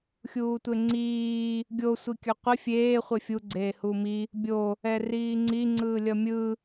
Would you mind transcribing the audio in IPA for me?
xʲuːtʷeŋ͡ǀiː | ɡʲo sʷikʲʌqʷi fʲeː χʷefʲu ɡ͡ǀeːhumi | bʲo | ɛriːŋ͡ǀi ŋ͡ǀɯːlʲʌmʲɯ

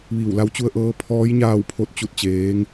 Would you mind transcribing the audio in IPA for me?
ʋiː˧˩wla˧˥w t͡ɕu˧ə̯ʔɤː˧˥ pʰɔː˧˥j ɲaː˥˨wpʰo˥˨t̚ t͡ɕu˥˨t̚t͡ɕeː˧˥ŋ

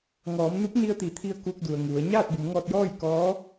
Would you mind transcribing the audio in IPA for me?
ŋɔː˩˧mnu˧˥p̚ ni˧ə̯t̪i˩˧t̪ʰi˧ə̯ ku˧k̚du˩ə̯ŋu˩˧ə̯ ɲaː˥˨t̚bu˩˧mŋɔː˧t̚jɔː˥˨j kɔː˧˥

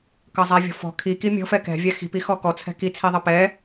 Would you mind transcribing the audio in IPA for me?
kʌzˤɛvʲɔ̤fɔ̤ kʰi kimʲɔ̤f ɛkɛ̤ vʲaxi̤p ixɔkɔ t͡sʰɛ̤ki t͡sʰiðˤʌpɛ

